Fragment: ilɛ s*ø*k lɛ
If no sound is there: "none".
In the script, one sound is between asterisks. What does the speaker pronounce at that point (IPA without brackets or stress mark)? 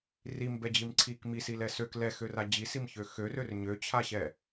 ø